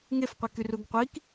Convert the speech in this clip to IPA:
ŋefqʷi kyruɡqʷik

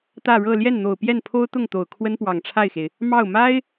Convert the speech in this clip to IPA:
t̪ä˥˧ɻɤ˥˧ ljɛ˥˩nn̪o˨˩ʊ̯pjɛ˥˩npʰo˥ʊ̯ t̪ʊ˥˩ŋt̪o˨˩ʊ̯ kʰwə˥npwɑ˨˩ŋʈ͡ʂʰa˥˩ɪ̯xe˩ɪ̯ | mɑ˥˩ʊ̯ ma˥ɪ̯

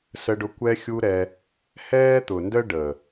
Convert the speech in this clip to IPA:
sə˧ɖʊ˧ kʷɛ˧xʲu˧ ɾɛ˧ | hɛː˦t̪ʊ˨ndə˦ɖəː˨

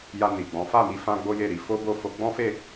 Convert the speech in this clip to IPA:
ja˧ni˨ɡ͡bɔ̃˨˦ fa˦˨mi˨˦fã˧ ɡ͡bo˦je˦˨ɾi˧ fo˦bo˦˨ fo˧ɡ͡bɔ̃˦fe˦˨

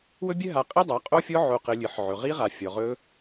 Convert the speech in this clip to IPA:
wɵ˦bʲɘ˦ ɦa˧qʼi˦dˤa˨˦ qʼo˦fʲɔ˦ ʕo˧qɘ˧ lʲɨ˨ħ ʕɵ˨ʁi˦ ʁa˧ fʲɔ˨ ʁɵ˦

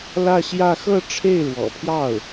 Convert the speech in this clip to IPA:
lä˥˧ɕjä˥˧ xɤ˥˧ʈ͡ʂʰe˥˩ɪ̯ɻwɔ̰˨˩pʰjɑ˥˩ʊ̯

